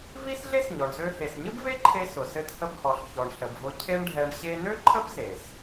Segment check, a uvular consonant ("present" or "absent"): absent